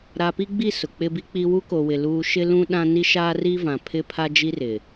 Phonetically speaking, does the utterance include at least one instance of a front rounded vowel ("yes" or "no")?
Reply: no